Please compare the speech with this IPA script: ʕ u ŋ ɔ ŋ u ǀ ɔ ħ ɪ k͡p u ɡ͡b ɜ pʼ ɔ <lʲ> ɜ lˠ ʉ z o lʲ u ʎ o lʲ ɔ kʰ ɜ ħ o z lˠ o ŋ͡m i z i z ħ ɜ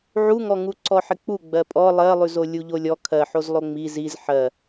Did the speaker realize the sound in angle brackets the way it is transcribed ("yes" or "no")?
no